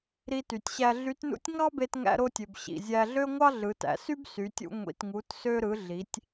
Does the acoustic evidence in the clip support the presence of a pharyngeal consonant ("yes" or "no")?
no